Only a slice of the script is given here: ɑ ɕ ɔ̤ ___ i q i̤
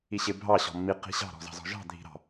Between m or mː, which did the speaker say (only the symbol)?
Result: mː